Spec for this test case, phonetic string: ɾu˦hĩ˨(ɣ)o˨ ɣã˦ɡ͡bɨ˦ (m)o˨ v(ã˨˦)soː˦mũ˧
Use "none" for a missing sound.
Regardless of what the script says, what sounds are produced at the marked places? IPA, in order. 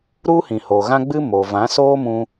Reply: h, m, ã˨˦

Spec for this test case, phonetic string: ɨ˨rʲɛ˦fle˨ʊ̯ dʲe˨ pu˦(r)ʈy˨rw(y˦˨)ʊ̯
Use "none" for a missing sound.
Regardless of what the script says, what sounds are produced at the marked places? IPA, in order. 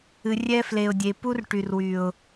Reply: r, y˨

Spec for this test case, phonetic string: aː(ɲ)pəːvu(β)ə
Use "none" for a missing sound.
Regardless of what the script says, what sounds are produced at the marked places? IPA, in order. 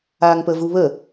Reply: ŋ, β

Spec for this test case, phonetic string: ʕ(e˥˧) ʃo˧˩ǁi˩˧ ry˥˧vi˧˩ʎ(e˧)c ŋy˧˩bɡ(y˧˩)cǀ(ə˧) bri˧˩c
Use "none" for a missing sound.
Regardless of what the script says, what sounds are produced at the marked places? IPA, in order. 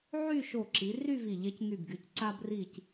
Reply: y˥˧, e˧, y˩˧, a˧

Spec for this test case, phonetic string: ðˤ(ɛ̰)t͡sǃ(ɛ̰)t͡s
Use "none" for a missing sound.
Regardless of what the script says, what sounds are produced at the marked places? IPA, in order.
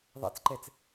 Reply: ɛ̰, ɛ

